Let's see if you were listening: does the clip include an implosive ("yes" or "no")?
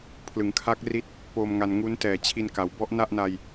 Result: no